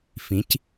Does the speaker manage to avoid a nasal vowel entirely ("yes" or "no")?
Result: no